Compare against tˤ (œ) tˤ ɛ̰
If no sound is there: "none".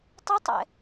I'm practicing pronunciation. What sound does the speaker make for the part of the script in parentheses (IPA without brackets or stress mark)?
ə